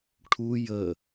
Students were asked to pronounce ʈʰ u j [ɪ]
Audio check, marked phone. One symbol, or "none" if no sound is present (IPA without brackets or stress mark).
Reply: ə